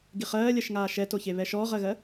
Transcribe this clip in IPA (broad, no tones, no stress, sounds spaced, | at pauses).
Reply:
ɡ i χ ɜː lʲ ɜ ʃ ŋ aː ʃ ɛ t o ç e β ɛ ʃ ɔː ʁ ɜ ɣ ɜ